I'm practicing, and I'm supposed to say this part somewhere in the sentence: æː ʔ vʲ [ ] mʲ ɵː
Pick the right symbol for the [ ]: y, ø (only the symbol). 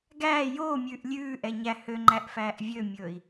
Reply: ø